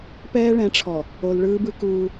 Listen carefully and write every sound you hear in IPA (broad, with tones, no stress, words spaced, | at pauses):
pɛː˦ɭɛ̃˨˦ʈ͡ʂʰɔ˨ | o˨lɭɯː˦bɯ˦ kuː˦